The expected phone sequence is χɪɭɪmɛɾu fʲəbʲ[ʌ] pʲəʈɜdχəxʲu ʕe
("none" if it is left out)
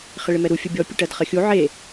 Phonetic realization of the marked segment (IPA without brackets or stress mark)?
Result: ɔ